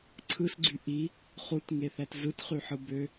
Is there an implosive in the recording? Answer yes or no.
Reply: no